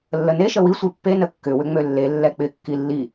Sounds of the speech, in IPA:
lː ə n e ʃ ə w i sʷ i pː e n ə kː ʏ w ʏ ŋ͡m ø lː e lː ɛ k͡p ɪ kː i lː i

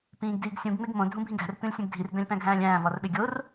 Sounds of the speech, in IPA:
p ĩː ɡ d iː ɡ sʲ ũ ɡ ŋ͡m e ɡ m õ dʱ ũ bʱ ĩ ɡ æ̤ r tʷ ĩ lʲ sʲ ũ ɡ dʱ i r d æ̃ lʲ p æ̃ ɡʱ æ̃ː lʲ æ̃ː v ɒ r ɓ e ɡʲ o r

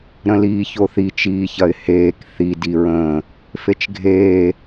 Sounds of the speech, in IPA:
ɾ ə̃ l iː ç o θ i t͡ʃ iː ç ɐ ɪ̯ h eː k θ i d i ɹ ə̃ː | f e t͡ʃ ɡʱ eː

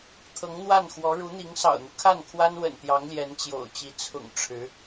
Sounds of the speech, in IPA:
t̪ʰ ɤ˧˥ ŋ n̪ w a˥˩ n x w ɔ˧˥ ɻ u˧˥ n̪ i˧˥ ŋ s ɑ̰˨˩ ʊ̯ n̪ u˦ kʰ a˥˩ n kʰ w a˥ n w ə̰˨˩ n t̪ j ɑ˧˥ ŋ l j ɛ˧˥ n t͡ɕ j o̰˨˩ ʊ̯ t͡ɕ i˧˥ t͡sʰ ʊ̰˨˩ ŋ ʈ͡ʂʰ ɻ̩˧˥

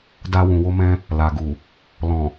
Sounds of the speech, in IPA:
d a˧ w ũ˨ w o˧ m ɛ̃˧ | l a˨ ɡ u˨ | l ɔ̃˨

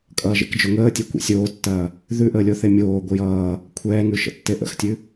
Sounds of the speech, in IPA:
kʼ ʌː ʒ ḛ k d͡ʒ ʊ ŋ əː tʲ e kʷ ḛ sʲ oː tː ɐː | ð ʉ ʔ əː lʲ o θ e mʲ oː ɡʷ ə j ʌː | kʷʰ ɛː ŋ ʉ ʃ ə̰ tː e ʔ ə̰ x tʲ ʉ

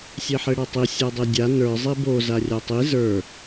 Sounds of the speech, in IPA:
sʲ e ħ e ɽ a tˤ i sʲ a dˤ e dʲ a n ə˞ zˤ i b o z a rʲ a tˤ i z ə˞

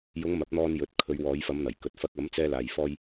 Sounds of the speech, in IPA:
j ʊ˨˧ ŋ m ɐ˨˥ p̚ n̪ ɔː˧ n j ɵ˨ t̚ kʰ ɵ˨˧ ɥ w ɔː˨˧ j f ɐ˨˧ m n̪ ɐ˨˩ j k ɵ˨ t̚ f ɐ˧ k̚ ɐ˨˥ m t͡s ɛː˧ l aː˨ j f ɔː˧ j

